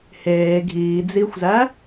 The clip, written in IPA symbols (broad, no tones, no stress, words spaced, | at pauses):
heː ɡʱiːd͡ziːxʷzæ